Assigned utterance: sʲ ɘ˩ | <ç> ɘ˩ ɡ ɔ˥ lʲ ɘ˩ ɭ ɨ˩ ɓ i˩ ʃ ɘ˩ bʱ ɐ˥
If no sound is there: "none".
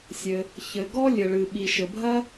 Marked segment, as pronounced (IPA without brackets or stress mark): ç